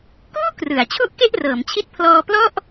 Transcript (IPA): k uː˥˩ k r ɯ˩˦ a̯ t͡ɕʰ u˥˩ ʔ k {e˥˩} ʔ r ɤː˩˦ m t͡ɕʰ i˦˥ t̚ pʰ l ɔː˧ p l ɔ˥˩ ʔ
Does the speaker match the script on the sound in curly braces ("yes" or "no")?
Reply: yes